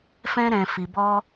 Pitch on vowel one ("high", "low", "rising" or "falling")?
high